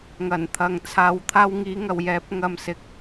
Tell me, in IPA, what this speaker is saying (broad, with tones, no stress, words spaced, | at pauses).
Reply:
ŋɐ˨˩nt̪ʰɐ˨ŋt͡sʰaː˨wt̪ʰaː˧w ŋiː˨˧ŋɐ˨wjɛː˨˥p̚ ŋɐ˧msɪ˨˥k̚